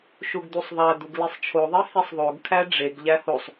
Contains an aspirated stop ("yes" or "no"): yes